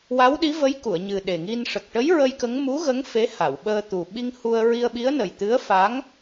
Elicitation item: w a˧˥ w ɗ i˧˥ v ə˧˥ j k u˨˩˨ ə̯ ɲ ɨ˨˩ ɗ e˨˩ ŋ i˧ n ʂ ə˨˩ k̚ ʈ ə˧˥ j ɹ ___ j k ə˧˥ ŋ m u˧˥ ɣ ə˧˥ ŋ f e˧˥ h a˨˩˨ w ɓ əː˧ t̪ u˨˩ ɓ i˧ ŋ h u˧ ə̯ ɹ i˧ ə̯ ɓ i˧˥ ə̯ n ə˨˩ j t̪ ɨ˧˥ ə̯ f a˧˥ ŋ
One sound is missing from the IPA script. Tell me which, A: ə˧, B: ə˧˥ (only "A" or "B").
A